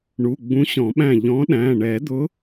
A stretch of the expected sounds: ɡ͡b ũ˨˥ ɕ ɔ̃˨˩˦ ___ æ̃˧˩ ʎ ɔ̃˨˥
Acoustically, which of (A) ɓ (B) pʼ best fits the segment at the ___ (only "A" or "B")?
A